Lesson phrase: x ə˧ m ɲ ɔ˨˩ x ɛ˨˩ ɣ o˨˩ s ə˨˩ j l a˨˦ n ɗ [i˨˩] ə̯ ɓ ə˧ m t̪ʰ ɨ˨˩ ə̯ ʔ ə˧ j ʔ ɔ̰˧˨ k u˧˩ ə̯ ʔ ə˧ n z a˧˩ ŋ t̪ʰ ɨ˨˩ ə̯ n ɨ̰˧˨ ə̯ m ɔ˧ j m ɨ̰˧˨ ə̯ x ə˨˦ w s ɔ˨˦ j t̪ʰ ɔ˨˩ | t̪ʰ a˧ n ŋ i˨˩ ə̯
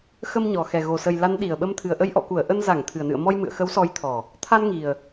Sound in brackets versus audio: correct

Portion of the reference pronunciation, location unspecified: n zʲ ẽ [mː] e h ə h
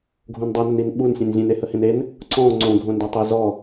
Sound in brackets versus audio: incorrect: n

